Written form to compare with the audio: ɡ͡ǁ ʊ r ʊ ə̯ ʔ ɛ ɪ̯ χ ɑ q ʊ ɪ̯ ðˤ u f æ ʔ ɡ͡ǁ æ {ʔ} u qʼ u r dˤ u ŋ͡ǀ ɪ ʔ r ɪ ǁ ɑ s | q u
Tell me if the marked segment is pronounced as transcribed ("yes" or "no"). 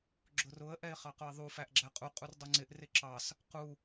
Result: no